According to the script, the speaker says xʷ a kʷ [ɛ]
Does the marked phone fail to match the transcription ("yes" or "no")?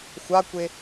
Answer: yes